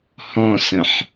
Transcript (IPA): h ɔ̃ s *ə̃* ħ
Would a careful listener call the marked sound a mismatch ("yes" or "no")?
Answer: no